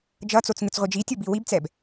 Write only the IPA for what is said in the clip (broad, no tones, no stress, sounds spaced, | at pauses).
d͡ʒ ʌ t͡s o t͡s ŋ ɯ t͡s ʁʷ i d͡ʒ i tʲ o b i w i b t͡s ɛ b